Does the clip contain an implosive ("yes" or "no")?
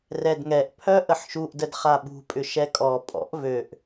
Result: yes